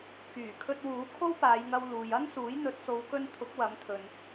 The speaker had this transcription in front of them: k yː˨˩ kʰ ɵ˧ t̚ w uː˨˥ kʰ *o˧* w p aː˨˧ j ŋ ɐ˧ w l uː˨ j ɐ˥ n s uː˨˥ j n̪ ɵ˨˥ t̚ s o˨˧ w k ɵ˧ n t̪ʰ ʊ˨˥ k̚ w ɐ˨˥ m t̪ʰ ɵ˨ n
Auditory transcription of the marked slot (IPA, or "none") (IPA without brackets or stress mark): o˥